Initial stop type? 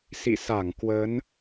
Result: plain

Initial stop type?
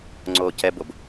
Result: click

